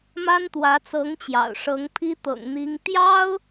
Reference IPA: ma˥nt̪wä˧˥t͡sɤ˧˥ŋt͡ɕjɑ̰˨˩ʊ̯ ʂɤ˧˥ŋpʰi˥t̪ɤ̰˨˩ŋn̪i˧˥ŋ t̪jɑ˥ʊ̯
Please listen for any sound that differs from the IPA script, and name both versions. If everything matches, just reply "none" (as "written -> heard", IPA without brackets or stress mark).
none